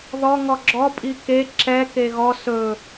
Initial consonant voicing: voiced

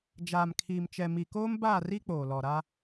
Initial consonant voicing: voiced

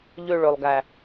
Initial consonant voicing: voiced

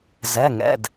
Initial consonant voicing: voiced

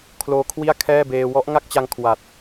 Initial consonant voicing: voiceless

